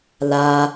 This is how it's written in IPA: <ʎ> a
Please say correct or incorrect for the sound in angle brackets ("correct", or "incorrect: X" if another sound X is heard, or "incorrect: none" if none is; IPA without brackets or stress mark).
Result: incorrect: l